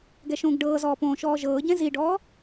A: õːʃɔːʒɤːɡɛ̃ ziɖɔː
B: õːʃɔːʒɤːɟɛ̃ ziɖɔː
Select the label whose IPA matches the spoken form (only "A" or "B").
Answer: B